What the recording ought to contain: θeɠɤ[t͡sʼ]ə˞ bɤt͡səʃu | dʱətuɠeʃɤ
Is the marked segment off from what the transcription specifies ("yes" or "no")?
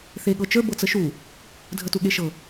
yes